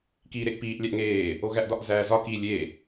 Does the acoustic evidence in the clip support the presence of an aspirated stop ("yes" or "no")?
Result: no